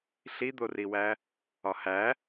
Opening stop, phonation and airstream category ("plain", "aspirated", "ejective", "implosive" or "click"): plain